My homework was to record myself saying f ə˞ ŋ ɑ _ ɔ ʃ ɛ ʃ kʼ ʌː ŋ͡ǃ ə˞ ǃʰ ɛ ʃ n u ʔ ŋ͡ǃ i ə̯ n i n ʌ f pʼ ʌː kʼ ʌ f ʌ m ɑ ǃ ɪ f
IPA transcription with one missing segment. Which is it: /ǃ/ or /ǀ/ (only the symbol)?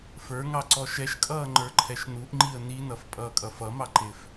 ǀ